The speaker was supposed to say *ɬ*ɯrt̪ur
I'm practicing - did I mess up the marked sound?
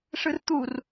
yes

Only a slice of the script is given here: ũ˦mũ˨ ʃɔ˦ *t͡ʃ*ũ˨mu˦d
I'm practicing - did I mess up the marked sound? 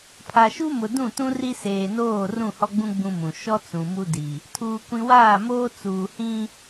yes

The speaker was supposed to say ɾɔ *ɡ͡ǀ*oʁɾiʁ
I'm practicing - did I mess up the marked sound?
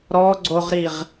no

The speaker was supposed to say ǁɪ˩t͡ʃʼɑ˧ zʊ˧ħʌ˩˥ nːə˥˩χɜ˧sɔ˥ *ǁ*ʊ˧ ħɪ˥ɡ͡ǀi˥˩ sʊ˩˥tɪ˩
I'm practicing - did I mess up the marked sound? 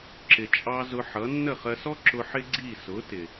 no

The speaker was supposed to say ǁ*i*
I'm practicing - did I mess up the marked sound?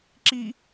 no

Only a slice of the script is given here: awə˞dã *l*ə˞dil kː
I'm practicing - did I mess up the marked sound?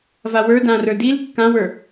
yes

